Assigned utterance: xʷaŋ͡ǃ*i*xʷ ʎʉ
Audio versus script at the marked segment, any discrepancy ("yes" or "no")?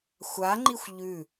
no